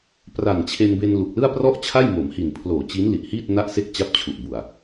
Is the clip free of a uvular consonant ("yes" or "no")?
yes